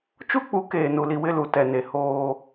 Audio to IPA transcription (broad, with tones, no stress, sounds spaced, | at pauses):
t͡ʃ u˦ k͡p u˨˦ k eː˨ n u˨ l i˨ w ɪ˦˨ l u˨ t ɛ˨ n e˨ h oː˦